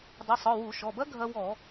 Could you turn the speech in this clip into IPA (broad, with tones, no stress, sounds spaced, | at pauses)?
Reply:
dˤ u˩˧˩ sˤ ɔ˩˧˩ w u˧˩˧ ʃ ɔ˩˧˩ b ɐ˦˥ ɡʱ ɐ˧ w ɔ˧˩˧